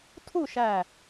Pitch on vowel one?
falling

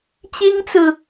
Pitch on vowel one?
high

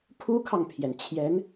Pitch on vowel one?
high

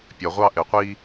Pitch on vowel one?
low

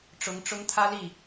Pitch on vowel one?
rising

